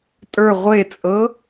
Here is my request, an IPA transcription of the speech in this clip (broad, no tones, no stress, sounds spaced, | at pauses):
tʼ ə˞ ʁʷ e t͡sʼ ɤ